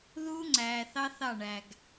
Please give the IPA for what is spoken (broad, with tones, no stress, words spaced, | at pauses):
ðuː˦ŋ͡ǀæː˨θɑ˦ θɑ˦˨ɳæ˨ɡ